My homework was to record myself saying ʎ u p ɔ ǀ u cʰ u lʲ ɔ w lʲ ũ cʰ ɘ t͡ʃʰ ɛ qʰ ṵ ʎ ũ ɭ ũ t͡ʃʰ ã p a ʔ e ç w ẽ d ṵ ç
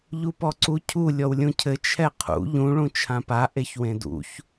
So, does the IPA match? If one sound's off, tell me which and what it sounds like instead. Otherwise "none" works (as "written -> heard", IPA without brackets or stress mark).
none